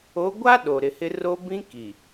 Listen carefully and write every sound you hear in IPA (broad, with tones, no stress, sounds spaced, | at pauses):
o˨˦ ɡʷ a˦ ɗ o˨ ɾ ɪ˨ h ɪ˦ r o˦ b ĩ˦ k i˨